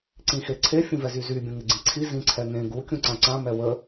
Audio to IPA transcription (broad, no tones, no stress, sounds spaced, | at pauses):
ǀ ĩ x e ǀʰ e fʲ ũ v ɛ z y z y bʲ ũ ŋ ɪ ɡ͡ǀ ĩ ǀʰ i z ĩ ǀʰ ɛ ŋ ẽ ɡ u kʲ ũ ǀ ã ǀ ã m ɛ w ə